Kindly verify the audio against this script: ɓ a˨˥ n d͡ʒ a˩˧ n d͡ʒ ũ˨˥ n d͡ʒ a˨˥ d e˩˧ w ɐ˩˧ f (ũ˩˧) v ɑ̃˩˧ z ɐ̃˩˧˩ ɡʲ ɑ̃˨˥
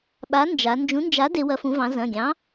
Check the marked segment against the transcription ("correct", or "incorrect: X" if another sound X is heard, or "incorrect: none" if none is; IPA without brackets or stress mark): correct